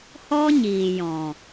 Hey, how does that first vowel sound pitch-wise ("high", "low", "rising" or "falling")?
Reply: high